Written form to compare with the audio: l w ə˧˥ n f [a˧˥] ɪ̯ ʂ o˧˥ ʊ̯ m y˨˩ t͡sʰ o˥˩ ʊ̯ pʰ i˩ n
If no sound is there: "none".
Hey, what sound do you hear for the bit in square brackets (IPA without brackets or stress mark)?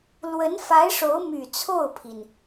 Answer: a˧˥